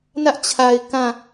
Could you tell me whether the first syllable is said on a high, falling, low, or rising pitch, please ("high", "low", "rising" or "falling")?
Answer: high